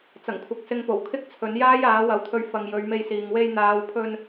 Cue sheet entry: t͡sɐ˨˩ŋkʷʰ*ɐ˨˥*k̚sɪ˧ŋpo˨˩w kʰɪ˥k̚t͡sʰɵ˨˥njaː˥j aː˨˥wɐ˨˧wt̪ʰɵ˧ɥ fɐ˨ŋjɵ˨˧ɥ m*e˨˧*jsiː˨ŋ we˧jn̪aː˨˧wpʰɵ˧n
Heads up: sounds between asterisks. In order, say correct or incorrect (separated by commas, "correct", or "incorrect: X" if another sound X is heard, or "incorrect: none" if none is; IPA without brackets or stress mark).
incorrect: ɐ˨, incorrect: e˧